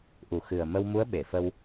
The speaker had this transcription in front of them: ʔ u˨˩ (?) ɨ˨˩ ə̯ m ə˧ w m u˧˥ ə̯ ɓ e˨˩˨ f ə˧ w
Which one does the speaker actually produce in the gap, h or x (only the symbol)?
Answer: x